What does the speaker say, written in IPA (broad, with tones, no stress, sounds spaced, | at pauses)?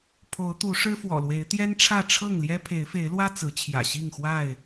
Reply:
pʰ o˨˦ ʊ̯ t̪ u˨˦ ʂ ɻ̩˦ f w ɔ̰˨˩ l w e˨˦ ɪ̯ t̪ j ɛ˦ n ʈ͡ʂʰ ä˥˨ ʈ͡ʂʰ ɤ˥˨ ŋ l j ɛ˦ pʰ e˨˦ ɪ̯ f e˨˦ ɪ̯ l w ä˦ t͡s ɹ̩˨˦ t͡ɕʰ j ä̰˨˩ ɕ i˥˨ ŋ x w a˥˨ ɪ̯